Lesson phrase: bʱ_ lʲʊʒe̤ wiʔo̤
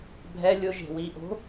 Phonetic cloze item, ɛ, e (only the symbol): ɛ